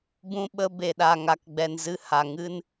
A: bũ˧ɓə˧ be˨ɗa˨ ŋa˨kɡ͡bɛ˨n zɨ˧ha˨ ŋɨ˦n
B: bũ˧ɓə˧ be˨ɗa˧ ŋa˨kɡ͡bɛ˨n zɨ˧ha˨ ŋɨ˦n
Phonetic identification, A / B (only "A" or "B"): A